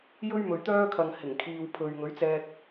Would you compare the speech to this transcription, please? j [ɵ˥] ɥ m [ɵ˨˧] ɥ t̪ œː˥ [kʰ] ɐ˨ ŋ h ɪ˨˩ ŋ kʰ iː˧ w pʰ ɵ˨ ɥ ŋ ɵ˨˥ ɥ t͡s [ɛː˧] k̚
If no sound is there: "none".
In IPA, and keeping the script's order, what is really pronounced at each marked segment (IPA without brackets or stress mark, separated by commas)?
ɵ˥, ɵ˨, kʰ, ɛː˧